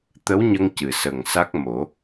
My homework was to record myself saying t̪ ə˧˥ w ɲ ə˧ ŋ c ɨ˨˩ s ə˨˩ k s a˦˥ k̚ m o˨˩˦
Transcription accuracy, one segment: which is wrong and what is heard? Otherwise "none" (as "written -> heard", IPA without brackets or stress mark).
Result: k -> ŋ